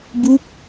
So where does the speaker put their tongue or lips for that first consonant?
lips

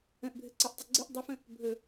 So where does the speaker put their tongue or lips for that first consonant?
throat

